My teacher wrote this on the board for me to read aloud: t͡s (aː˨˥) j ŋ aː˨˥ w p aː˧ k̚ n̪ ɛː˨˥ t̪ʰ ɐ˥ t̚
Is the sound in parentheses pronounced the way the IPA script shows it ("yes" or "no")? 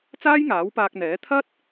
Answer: no